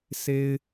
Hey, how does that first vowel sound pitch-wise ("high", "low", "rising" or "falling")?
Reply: high